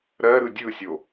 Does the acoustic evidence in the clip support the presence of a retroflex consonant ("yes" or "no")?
no